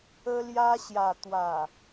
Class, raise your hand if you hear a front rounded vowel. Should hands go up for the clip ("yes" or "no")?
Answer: no